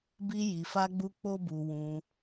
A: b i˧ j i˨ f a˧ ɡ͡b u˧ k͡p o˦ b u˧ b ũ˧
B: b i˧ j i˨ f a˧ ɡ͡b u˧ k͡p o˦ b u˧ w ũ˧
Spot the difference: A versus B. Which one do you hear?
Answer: B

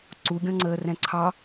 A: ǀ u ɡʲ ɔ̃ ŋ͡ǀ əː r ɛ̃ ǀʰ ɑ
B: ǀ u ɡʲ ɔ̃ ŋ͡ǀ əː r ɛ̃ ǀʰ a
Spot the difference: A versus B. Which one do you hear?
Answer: A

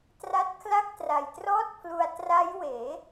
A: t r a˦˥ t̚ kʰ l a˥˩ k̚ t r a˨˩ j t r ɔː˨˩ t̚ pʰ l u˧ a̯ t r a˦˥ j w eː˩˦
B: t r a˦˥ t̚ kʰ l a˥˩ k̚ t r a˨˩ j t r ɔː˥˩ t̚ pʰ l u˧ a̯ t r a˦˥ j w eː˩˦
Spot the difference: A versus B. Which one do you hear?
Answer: B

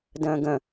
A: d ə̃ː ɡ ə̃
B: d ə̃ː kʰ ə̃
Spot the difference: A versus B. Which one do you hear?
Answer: A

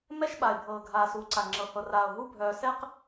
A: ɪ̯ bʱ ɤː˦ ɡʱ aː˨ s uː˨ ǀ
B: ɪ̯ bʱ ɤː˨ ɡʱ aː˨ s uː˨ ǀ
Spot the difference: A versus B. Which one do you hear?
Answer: B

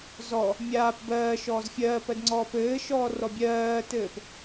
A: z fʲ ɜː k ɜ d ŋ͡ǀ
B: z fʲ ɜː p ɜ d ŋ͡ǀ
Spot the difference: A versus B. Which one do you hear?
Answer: B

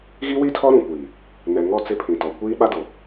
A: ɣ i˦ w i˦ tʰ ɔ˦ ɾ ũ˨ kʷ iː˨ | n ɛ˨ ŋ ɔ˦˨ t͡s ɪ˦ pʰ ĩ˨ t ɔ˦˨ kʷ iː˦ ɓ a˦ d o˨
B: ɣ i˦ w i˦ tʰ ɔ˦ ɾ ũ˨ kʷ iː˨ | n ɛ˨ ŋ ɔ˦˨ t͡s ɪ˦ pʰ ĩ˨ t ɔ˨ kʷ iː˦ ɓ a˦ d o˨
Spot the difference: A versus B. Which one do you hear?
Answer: B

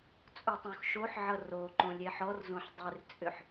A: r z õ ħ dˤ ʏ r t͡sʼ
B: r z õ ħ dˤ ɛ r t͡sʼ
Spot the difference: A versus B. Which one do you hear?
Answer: A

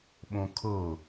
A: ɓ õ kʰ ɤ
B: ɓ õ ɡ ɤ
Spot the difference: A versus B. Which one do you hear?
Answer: A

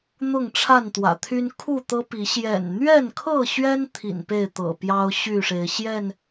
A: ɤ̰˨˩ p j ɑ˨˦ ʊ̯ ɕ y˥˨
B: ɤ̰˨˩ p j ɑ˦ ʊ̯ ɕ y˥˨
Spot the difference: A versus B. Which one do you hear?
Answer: B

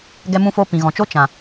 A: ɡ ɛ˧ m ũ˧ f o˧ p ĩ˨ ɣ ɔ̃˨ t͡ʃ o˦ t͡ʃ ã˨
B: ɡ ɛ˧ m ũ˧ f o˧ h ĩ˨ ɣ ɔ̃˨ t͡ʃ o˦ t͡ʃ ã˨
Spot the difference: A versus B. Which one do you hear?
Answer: A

